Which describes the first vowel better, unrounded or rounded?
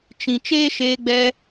unrounded